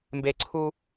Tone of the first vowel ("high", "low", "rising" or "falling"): low